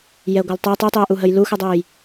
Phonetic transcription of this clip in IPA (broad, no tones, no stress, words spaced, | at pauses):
jɛɡʷaltˤœ tˤytˤyə̯ʔuɦəj luxədˤuj